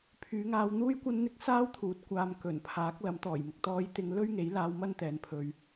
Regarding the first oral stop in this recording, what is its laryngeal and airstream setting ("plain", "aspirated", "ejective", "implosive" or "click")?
aspirated